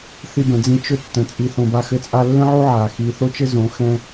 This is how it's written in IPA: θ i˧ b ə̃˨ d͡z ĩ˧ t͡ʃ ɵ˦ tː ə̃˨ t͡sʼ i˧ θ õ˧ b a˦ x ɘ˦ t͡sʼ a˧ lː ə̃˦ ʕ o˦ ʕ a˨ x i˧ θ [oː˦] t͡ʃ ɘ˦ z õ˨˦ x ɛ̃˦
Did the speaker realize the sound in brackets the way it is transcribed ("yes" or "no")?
no